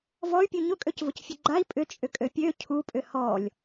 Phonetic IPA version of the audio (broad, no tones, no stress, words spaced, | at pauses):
vɔy̯pʲu ɲʊkʼøcvʊcfʲʊ ɡ͡ǃai̯ pʼʏt͡ʃʼʏkʼø pʲø cʰupʼʏ hɔlʲ